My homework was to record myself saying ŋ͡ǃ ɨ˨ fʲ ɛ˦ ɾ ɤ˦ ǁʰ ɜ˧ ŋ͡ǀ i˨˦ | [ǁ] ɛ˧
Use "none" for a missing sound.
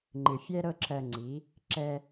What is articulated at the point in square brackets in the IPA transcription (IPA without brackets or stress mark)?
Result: ǁ